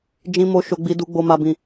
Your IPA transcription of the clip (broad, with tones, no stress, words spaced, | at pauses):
d͡ʒĩ˨mo˨ ʃo˨ɡ͡bi˨ du˨ɡ͡bo˨ma˨ bĩ˨